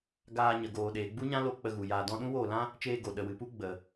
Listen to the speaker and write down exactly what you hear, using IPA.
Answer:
ɡaː˧ɲə˨ɡoː˨ɗeː˨ ɡ͡bu˦ɲã˦lo˧ k͡pə˧ɣu˨jaː˧ dɔ̃˧ɗũ˦woː˦˨lã˦ | t͡ʃeː˧ ɡo˨ ɗə˨wɨ˨pu˦ ɡ͡bə˨

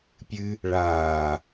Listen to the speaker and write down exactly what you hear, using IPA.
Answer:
pʲɨ | ɭaː

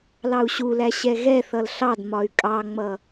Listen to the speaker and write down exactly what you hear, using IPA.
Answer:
lɑu̯ɕulæ ɕɛɣɛθʌl ɬɑdmɒy̯ kʼɑŋ͡mʌ

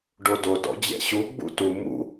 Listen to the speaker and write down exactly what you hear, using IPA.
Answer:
ɖododɔ̰ d͡ʑɛ̰ɕu ɡ͡bṵtu mṵ

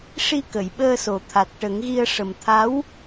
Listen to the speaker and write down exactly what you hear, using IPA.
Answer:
ʂi˧ kə˨˩˨jɓəː˧so˨˩ t̪ʰa˨˩t̚ʈə˨˩˦ŋɣi˧ə̯ ʂə˨˩mt̪ʰa˧˥w

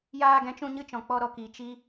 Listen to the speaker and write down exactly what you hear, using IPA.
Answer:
jaː˧ɡɛ̃˨˦t͡ʃũ˧ɲɨ˧ t͡ʃɔ̃˨k͡pɔ˧ɾɔ˨kiː˨ t͡ʃi˦

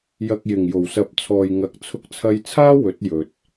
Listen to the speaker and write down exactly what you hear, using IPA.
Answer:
jɐ˨k̚jɪ˨˩ŋ jo˨˩wsɐ˨˥p̚t͡sʰɔː˨j ŋɐ˨˥k̚ t͡sʰʊ˧k̚t͡sʰɐ˧jt͡sʰaː˥ wɵ˨˥t̚ jɵ˨t̚

